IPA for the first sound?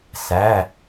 s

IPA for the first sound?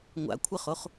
ŋʷ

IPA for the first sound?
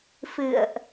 f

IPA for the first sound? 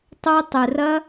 tˤ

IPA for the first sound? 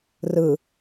r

